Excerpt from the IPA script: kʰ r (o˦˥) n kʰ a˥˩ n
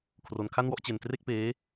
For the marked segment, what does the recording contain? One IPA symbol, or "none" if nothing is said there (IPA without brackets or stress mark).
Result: o˧